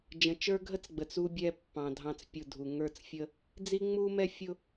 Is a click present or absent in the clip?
absent